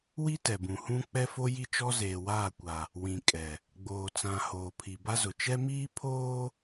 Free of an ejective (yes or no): no